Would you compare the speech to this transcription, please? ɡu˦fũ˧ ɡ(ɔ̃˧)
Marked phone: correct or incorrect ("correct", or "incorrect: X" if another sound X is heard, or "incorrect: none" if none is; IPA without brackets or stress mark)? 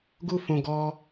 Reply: incorrect: ɔ˧